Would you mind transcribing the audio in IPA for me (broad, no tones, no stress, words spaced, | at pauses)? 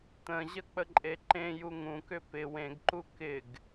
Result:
t̪ə̃ʑə k͡pəǃʼeǃẽju ŋũkʏ pɪ wẽɡǃu kɪɡ